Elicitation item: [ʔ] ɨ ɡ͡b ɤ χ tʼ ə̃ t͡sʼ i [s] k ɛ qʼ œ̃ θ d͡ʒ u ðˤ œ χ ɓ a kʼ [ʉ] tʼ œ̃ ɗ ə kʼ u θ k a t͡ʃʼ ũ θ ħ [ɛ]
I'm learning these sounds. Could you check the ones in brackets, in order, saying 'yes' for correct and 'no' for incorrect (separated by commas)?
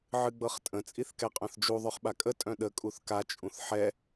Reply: no, no, no, yes